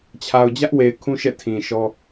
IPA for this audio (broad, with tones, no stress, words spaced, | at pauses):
t͡ɕʰa˨ʊ̯ d͡ʑä˦ʔwe˨ɪ̯ kʰũ˦ʃɛ̰˦˨ tʰĩ˨ʃɔ˦